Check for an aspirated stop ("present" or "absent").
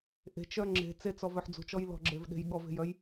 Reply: absent